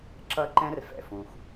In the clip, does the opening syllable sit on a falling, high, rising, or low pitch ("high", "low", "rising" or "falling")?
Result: high